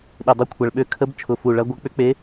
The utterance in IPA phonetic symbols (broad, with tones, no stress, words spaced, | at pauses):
ɗɪ˨˩dˤʊ˧˥kʷʰɐ˨˩ɭɓø˧˥ kʰə˧˥b t͡ʃʰʊ˨˩fu˨˩ɭɐ˧˥ ɡʷɐ˧˥k͡pʏ˧˥k͡pe˧˥